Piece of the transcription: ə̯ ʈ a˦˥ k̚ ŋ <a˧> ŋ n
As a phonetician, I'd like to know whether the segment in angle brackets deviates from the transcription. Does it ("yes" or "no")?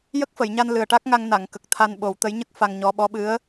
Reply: no